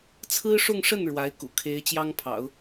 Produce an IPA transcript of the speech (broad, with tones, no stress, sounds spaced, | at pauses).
t͡sʰ ɹ̩˥ ʂ ʊ˥˧ ŋ ʂ ə˥˩ n ɻ w a˧˥ ɪ̯ k ṵ˨˩ kʰ e˧˥ ɪ̯ t͡ɕ j ɑ˥ ŋ pʰ ɑ̰˨˩˦ ʊ̯